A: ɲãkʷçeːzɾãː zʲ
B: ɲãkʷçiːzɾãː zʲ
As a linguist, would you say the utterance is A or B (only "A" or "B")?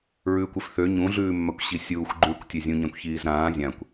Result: B